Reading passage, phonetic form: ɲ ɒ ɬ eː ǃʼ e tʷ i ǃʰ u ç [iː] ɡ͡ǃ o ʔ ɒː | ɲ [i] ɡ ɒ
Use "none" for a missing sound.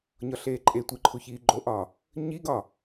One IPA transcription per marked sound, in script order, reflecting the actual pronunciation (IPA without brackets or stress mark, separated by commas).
iː, i